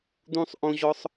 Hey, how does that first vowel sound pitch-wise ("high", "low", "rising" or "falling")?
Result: high